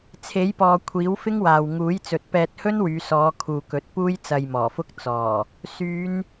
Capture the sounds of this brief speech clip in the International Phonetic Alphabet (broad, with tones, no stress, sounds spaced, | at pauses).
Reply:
t͡sʰ e˨˥ j p ɔː˨ kʷʰ iː˨˥ w f ɪ˥ ŋ w aː˨ w ŋ uː˨˥ j t͡s ɵ˨˥ t̚ p ɛː˧ t̚ h ɵ˥ n w yː˨˧ s ɔː˨˧ kʰ uː˨ k ɵ˨˥ t̚ p uː˥ j t͡s ɐ˧ j m ɔː˨˩ f ʊ˥ k̚ t͡s ɔː˨˩ | s yː˨˧ n